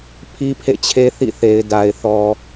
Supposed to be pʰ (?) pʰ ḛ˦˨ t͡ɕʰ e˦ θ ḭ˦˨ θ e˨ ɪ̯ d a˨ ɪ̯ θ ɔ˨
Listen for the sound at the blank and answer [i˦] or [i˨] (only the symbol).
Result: i˦